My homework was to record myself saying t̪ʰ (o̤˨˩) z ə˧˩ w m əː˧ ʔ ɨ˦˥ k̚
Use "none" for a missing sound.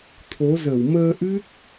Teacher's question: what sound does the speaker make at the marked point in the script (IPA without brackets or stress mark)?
o˨˦